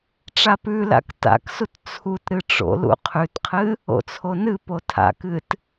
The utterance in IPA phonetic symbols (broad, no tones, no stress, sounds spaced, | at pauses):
ʈ͡ʂ a p ʉ l a̰ k t a̰ k s u t t͡sʰ u t ɾ ɨ ʈ͡ʂ o̰ l ṵ qʰ ʉ t qʰ ɨ | o̰ t͡sʰ o n ɨ p o tʰ a̰ k ɨ t